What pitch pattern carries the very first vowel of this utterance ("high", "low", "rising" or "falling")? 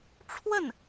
falling